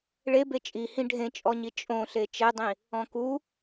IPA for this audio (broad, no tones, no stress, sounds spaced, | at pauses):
ɭ e b e t͡ʃʼ i h ĩ ɖʱ ẽ t͡ʃʼ ɔ ɲ i t͡ʃʼ õ ɬ e t͡ʃ ɛ dˤ ĩ | ɔ̃ k u